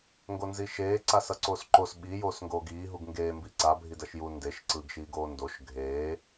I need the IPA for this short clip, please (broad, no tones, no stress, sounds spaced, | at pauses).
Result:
ŋ ɡ o n z i ʃ eː ǀ a s ʌ ǀ oː s ǃ o s ɓ i j oː s ŋ ɡ oː ɡ iː ɦ u ɡ ŋ ɡ eː m b i ǀ a bʱ i d ʌ ʃ j u n d e ʃ ǀ ɯ ɡ ʃ iː ɡ oː n d o ʃ ɡʱ eː